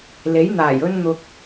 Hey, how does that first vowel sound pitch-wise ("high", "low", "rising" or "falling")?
rising